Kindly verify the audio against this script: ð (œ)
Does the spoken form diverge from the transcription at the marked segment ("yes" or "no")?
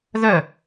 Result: no